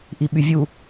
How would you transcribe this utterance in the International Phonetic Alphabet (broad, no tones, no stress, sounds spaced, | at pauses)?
ʔ i ɓ y vʲ u